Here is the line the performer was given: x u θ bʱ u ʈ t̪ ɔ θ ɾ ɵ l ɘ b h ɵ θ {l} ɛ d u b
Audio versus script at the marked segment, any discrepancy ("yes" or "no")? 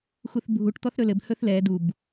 no